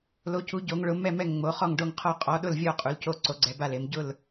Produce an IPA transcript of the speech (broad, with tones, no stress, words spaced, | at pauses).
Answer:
lo˨˦cu˨˦ ɟo˨˦ŋɭʊ˨˦ mɛ˦˨mɛ˦˨ŋŋ͡mo˨˦ χɔ˦˨ŋɖo˦˨ŋqʰɔ˦˨ qʼɔ˨˦ɗʊ˦˨lvʲɔ˦˨ qʼu˨˦lco˦˨ ǀo˨˦ɡ͡ǀɛ˨˦ba˦˨le˨˦m ɟʊ˦˨l